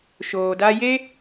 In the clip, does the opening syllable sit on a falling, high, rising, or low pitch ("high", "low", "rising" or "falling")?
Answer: low